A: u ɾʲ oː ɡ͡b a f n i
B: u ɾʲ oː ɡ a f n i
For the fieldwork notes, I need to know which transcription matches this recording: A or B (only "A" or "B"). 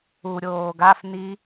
B